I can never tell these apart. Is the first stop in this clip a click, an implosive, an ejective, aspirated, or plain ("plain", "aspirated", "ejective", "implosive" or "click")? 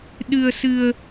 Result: implosive